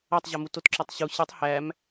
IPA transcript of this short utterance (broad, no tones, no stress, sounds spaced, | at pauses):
æ tˤ ʑ ɒ m u t o t ǁ ɒ tˤ ɕ u ɕ i tˤ h æ m